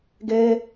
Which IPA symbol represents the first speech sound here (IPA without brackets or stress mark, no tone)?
ɡ